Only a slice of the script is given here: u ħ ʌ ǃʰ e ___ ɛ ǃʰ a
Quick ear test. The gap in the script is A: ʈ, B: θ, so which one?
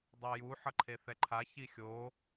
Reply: B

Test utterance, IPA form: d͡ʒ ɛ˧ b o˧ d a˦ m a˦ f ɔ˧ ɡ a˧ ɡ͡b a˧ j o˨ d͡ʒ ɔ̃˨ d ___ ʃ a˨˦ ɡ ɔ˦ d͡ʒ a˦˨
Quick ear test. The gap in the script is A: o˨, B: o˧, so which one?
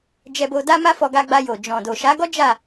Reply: A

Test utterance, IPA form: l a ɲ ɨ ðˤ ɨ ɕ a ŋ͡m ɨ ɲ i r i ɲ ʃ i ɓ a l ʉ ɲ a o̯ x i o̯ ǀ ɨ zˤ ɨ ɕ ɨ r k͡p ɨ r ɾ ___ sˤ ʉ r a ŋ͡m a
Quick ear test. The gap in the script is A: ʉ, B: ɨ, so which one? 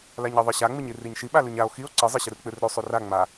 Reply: A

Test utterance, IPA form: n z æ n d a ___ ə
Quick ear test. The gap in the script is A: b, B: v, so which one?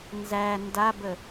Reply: A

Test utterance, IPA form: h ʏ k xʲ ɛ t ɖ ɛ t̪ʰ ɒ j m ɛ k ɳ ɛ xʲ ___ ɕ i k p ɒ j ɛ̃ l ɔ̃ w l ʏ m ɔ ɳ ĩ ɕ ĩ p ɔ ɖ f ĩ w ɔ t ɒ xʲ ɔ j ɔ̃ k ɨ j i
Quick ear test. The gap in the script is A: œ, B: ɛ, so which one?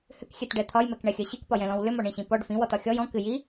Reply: A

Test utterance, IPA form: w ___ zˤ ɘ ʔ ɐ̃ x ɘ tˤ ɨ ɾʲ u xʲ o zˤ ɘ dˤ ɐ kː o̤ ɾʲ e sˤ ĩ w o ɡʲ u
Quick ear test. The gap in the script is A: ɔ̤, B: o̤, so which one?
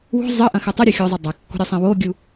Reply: B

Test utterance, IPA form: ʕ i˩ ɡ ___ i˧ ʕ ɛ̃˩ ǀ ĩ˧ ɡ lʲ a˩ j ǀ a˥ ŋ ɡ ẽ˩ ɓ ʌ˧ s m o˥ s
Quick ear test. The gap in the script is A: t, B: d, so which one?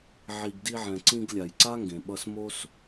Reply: B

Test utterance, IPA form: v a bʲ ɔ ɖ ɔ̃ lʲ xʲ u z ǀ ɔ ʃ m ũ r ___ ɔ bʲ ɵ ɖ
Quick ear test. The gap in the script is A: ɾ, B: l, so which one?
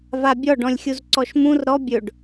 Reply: A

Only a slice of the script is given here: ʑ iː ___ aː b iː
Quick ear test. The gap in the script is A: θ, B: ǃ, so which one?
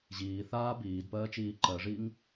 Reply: A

